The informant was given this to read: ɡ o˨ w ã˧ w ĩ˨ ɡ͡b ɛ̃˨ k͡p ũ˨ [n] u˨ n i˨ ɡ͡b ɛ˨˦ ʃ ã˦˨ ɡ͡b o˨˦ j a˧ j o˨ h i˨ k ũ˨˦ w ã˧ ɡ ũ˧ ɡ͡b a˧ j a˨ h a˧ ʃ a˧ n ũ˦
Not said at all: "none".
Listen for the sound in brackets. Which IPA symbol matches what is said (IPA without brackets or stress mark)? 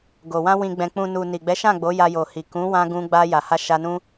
n